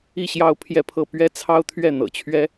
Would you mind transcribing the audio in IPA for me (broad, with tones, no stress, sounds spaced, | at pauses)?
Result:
i˥˧ ɕ j ɑ˥˧ ʊ̯ pʰ j ɛ˥˧ pʰ ɤ˥˩ p ɥ ɛ˥ t͡sʰ ɑ˥ ʊ̯ t̪ʰ ɥ ɛ˥˩ n̪ ɤ̰˨˩ t͡ɕʰ ɥ ɛ˥